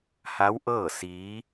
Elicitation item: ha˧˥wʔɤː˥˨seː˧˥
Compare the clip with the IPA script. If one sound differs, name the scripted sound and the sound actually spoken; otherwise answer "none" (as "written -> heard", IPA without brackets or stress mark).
eː˧˥ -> iː˧˥